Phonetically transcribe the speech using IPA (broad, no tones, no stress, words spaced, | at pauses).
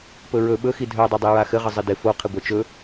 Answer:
pɵɹɵ ɓɵxi dʱœdˤɘ dˤiɹaxɘʁə zˤɪdɪ foqʰɪ ɡʷœt͡ʃɵ